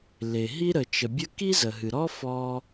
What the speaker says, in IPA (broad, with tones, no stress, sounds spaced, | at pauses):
l e˩ ɦ i˥ ɾ ə˩ t͡ʃ ə˩ bʲ ə˥ k i˥ z ə˩ ɦ ɨ˩ ɾ ɔ˥ f ɔ˥